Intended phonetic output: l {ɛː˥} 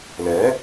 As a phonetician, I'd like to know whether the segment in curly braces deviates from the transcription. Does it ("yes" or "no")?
yes